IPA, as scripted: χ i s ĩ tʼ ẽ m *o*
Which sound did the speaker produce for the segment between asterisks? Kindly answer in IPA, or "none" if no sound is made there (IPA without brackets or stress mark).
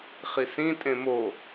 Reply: o